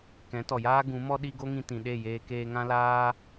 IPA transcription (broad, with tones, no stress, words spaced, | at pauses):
kɛ̃˨˦tɔ˨jaː˦ ɡũ˨˦mɔ˦ ɗi˧ ɡo˦ŋĩ˧ tĩ˨ɗe˦˨jeː˧ keː˧ŋã˦laː˦